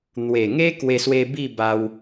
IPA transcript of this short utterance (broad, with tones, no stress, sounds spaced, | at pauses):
n̪ w e˨˩ ŋ e˦ k w e˧ s w e˧ b i˥˧ b a˧ w